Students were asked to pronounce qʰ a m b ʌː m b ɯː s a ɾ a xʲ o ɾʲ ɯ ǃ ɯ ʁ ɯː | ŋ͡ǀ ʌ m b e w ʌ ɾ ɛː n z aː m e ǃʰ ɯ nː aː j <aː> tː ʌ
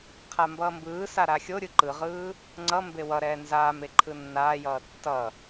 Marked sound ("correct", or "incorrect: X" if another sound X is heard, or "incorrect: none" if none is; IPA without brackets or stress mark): incorrect: ʌː